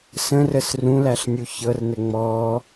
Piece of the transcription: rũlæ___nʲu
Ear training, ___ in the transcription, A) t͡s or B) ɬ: B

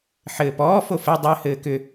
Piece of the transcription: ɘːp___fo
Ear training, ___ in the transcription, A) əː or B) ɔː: B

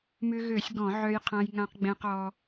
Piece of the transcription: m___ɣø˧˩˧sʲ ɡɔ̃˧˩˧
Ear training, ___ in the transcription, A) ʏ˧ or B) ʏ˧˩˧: A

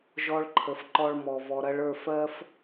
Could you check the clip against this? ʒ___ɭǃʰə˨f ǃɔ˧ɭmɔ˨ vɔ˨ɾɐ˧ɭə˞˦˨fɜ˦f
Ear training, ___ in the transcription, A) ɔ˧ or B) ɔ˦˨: A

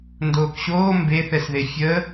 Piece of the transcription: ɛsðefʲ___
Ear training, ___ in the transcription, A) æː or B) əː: B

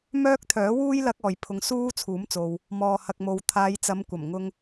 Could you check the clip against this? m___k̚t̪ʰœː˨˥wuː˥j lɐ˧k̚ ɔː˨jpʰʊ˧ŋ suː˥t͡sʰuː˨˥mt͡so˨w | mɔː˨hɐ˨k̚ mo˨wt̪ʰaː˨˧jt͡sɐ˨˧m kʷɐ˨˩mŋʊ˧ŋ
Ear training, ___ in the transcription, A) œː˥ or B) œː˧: A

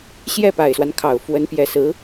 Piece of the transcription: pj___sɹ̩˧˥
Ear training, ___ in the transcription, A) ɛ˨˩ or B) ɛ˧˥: A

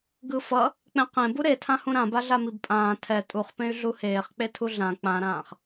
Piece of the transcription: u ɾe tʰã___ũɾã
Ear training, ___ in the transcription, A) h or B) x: A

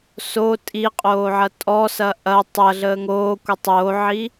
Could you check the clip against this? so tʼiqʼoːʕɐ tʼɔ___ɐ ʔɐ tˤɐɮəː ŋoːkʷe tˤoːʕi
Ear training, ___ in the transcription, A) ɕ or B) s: B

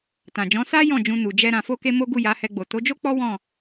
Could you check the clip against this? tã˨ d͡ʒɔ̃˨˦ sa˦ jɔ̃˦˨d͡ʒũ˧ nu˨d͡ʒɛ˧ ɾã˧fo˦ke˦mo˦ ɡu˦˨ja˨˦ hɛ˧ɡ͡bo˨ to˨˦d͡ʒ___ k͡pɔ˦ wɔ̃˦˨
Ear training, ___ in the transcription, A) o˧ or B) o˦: B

